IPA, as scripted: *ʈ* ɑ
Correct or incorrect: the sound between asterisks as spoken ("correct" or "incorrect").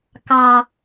incorrect